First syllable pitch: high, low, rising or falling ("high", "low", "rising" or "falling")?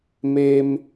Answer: high